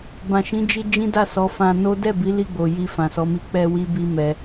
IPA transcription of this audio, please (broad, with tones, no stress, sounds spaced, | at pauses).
b ã˨ ʃ ĩ˨˦ d͡ʒ i˧ d͡ʒ ĩ˦ d a˦˨ s ɔ˨˦ f ã˧ n o˦ d ɛ˦˨ b i˨˦ l i˦˨ ɡ͡b o˨ j i˧ f ã˨ s ɔ˨˦ m i˧ k͡p ɛ˧ w i˧ b i˧ m ɛ˧